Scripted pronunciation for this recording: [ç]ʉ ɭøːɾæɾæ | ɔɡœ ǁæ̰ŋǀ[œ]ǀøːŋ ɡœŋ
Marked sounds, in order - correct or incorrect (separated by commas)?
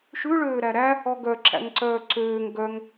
incorrect, incorrect